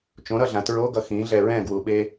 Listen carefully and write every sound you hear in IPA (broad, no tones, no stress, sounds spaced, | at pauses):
t͡ʃ õ ɾ ʌ ɮ ã t ɹ o ɡ ʌ x ĩ ɮ ɛ ɹ ɛ̃ ɡ w u ɓ e